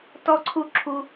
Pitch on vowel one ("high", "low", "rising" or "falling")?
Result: high